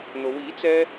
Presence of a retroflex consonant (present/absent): absent